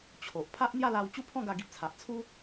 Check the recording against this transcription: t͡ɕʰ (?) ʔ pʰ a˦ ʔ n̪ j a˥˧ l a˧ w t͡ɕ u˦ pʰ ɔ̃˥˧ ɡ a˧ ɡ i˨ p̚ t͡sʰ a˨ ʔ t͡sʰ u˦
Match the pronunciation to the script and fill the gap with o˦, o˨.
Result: o˨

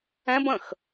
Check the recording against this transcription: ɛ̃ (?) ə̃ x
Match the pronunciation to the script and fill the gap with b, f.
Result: b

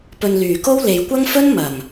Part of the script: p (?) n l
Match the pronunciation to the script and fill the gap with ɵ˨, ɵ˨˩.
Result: ɵ˨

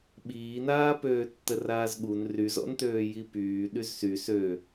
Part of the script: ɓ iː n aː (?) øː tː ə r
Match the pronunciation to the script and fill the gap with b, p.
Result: p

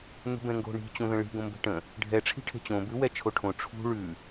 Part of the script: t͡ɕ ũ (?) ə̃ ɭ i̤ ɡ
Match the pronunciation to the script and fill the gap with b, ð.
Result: ð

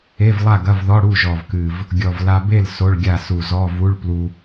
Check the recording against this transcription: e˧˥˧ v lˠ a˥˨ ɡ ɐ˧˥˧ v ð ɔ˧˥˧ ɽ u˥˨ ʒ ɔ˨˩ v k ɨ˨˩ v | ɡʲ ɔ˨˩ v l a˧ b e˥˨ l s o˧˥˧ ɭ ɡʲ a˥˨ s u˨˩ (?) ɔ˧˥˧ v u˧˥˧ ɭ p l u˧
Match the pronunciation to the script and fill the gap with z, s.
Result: z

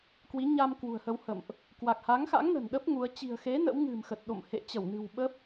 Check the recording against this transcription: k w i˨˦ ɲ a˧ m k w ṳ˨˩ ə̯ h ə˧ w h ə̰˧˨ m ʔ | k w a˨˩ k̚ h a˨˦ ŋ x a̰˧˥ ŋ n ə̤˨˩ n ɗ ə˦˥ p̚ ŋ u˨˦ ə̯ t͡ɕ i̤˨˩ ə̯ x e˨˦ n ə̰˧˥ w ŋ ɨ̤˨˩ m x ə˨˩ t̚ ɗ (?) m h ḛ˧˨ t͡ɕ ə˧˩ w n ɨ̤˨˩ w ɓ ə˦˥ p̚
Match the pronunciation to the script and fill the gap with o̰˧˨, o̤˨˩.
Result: o̰˧˨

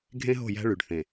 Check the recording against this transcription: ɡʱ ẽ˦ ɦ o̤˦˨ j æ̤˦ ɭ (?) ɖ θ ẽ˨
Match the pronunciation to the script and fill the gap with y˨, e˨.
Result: y˨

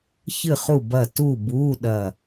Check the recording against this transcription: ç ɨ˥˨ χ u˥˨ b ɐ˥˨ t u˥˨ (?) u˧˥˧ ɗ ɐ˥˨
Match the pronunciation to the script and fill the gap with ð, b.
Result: b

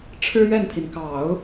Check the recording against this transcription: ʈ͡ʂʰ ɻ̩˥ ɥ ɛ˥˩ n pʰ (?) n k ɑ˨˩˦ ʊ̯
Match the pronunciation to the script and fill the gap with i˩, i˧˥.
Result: i˩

